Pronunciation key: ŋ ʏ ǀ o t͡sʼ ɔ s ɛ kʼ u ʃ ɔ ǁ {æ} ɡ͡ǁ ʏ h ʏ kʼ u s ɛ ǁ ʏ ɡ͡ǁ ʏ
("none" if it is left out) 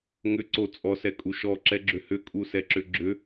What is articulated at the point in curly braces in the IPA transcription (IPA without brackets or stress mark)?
ɛ